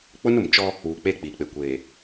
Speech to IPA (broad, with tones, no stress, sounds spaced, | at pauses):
k͡p ʊ˦ n ʊ˨ m t͡ʃ ɔ˦ | uː˨ k͡p e˦˨ k͡p iː˨ k͡p e˨ kʷ eː˨